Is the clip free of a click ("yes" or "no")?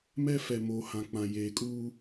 yes